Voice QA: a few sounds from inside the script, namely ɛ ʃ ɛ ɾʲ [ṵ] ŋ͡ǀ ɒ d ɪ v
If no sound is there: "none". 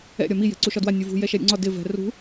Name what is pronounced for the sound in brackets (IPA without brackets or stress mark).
ṵ